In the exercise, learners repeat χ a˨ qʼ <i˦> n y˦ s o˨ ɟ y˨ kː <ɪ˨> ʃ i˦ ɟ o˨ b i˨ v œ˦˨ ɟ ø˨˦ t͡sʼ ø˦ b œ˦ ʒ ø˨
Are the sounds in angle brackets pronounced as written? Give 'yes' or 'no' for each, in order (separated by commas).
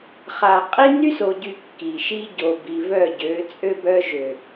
yes, no